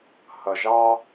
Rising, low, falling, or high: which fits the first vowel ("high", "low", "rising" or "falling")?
low